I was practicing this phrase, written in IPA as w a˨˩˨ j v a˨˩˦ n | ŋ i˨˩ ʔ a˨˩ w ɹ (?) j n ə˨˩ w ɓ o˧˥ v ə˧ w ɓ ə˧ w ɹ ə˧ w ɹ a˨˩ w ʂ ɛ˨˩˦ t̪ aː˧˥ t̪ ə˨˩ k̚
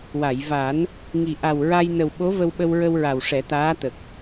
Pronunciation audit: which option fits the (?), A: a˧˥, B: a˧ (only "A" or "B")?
B